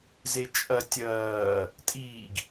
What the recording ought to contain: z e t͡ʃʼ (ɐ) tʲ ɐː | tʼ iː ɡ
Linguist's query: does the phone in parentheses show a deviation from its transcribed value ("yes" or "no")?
no